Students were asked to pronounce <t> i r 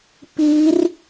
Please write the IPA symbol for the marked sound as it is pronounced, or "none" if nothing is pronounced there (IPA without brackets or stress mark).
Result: p